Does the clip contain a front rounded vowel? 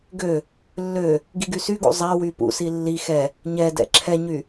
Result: yes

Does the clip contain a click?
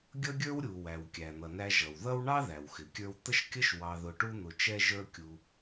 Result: no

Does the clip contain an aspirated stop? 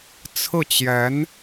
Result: yes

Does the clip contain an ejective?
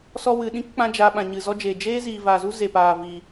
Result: no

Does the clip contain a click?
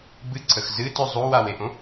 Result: yes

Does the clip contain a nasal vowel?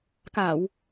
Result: no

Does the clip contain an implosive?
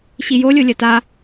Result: no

